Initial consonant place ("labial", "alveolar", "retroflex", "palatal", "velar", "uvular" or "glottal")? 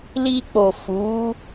alveolar